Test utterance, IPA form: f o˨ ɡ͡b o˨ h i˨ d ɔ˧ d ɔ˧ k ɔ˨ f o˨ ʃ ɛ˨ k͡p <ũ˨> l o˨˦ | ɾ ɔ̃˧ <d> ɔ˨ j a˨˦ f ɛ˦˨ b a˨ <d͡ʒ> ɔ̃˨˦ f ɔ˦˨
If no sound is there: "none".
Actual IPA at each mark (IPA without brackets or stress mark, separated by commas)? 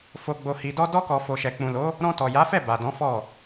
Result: ũ˨, t, d